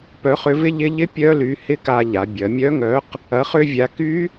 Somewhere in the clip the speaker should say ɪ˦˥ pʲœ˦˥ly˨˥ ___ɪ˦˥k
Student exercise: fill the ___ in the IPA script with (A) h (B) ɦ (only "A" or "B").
A